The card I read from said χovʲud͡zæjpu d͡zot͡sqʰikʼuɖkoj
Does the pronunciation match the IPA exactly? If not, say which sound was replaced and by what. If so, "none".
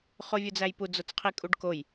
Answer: none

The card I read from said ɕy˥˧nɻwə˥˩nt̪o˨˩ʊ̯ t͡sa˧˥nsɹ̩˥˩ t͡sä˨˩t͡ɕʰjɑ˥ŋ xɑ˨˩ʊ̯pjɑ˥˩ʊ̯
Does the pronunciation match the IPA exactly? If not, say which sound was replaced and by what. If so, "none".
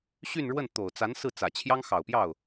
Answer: none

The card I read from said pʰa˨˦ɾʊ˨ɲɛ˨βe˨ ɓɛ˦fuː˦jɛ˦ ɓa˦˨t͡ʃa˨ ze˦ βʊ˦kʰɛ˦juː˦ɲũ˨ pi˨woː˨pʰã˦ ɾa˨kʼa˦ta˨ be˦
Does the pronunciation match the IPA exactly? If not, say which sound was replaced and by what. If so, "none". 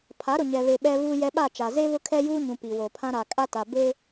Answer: f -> β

